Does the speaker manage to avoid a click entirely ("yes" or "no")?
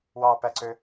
no